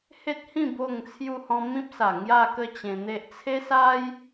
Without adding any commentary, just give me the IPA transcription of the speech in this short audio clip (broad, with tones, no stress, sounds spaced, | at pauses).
h e˦ t̚ h ĩ˥˧ b o˥˧ ŋ t͡sʰ j u˧ h ɔ̃˧ m ĩ˦ p̚ s a˨˩ ŋ j a˥˧ k ə˥˧ t͡ɕ ẽ˧ n̪ e˦ ʔ t͡sʰ e˦ s a˦ j